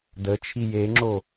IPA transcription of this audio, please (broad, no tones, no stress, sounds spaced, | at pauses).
d ə t͡ʃʰ i j e ŋ͡ǁ o